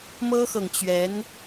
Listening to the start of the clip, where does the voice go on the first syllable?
high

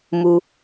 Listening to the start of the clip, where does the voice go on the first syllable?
high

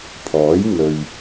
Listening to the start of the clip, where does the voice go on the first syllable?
rising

